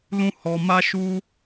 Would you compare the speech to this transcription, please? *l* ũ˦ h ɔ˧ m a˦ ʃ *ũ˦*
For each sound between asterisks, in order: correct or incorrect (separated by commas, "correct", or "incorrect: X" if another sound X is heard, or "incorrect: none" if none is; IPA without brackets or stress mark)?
correct, incorrect: u˦